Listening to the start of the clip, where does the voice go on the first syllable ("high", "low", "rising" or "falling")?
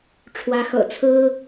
rising